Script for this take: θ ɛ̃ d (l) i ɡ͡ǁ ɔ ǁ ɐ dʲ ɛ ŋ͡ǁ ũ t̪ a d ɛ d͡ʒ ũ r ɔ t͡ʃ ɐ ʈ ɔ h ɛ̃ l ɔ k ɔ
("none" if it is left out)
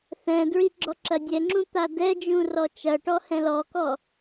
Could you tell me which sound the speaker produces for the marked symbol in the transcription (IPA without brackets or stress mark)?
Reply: ɹ